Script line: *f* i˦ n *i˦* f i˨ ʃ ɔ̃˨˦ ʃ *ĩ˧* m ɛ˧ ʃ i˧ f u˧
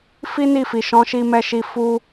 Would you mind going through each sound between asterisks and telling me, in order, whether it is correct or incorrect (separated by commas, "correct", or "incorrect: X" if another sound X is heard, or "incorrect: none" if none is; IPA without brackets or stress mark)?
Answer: correct, incorrect: i˦˨, incorrect: i˧